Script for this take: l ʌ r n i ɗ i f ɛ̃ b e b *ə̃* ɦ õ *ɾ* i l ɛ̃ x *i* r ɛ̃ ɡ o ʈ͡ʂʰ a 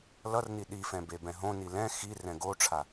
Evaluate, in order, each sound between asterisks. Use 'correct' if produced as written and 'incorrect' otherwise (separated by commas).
incorrect, incorrect, correct